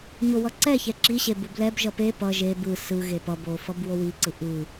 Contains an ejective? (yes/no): no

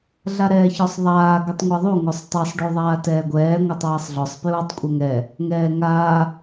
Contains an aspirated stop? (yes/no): no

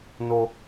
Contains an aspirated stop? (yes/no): no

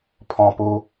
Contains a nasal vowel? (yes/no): yes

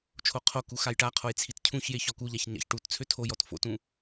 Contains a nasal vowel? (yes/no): yes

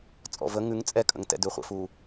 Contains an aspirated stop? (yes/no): no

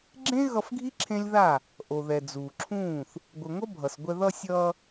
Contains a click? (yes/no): yes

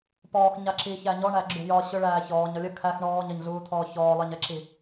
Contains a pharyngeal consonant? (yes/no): no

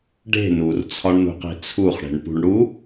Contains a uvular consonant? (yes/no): yes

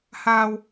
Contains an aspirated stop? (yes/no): no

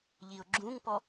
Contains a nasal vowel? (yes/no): yes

